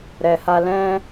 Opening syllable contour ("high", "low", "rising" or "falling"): low